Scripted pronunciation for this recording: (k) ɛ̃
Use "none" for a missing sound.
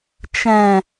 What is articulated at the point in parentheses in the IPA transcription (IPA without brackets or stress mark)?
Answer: t͡ʃ